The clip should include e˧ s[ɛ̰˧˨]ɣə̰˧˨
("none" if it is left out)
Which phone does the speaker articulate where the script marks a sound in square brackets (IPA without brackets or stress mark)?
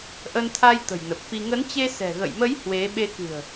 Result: ɛ̤˨˩